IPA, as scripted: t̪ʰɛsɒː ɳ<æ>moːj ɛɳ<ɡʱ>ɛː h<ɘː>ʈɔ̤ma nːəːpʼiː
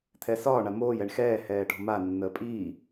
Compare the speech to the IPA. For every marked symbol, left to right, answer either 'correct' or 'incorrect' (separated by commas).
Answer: incorrect, incorrect, incorrect